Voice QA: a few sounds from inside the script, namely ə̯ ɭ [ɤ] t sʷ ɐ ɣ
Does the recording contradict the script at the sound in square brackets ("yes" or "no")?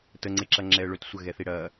yes